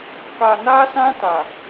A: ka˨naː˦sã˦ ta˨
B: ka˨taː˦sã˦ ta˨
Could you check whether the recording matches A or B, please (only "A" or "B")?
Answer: A